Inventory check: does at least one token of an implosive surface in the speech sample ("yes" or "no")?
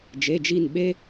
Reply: yes